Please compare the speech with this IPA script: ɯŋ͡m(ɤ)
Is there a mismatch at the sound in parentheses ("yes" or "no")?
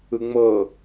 no